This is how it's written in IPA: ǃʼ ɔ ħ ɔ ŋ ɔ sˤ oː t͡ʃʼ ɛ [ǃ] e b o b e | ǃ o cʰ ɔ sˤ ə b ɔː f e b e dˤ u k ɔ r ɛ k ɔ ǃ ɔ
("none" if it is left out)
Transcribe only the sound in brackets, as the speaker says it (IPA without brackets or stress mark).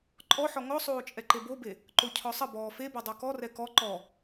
ǃ